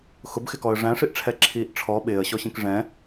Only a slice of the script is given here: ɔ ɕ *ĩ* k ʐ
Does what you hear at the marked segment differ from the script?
no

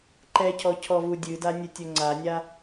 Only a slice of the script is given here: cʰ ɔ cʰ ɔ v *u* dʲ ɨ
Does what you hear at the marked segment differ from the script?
no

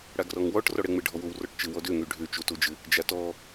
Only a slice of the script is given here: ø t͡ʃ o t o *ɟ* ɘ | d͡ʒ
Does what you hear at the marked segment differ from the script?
yes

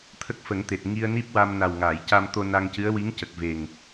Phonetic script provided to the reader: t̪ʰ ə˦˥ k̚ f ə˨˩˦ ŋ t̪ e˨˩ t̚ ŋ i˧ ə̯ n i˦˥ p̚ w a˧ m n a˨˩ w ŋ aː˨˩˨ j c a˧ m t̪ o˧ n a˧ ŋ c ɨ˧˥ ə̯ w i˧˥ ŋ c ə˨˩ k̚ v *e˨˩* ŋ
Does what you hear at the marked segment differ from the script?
no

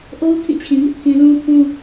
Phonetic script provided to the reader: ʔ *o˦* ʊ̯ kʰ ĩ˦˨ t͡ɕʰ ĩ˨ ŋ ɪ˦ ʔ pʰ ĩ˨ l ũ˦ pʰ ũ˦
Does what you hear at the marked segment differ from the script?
no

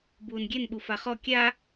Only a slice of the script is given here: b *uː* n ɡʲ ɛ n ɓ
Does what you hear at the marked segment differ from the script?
no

